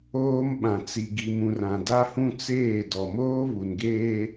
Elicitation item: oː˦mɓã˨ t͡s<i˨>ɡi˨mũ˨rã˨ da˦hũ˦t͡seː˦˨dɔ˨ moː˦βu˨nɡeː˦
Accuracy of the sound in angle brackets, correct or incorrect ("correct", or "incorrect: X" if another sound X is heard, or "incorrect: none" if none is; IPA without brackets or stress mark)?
correct